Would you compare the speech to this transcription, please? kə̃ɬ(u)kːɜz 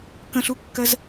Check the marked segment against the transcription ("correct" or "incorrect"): correct